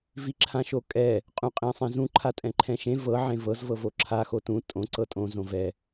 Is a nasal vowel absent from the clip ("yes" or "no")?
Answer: no